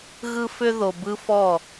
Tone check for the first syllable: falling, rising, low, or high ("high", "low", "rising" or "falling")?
high